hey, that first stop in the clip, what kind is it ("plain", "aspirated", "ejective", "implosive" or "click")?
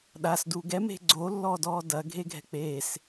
implosive